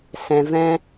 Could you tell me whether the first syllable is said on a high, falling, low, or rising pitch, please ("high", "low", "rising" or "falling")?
low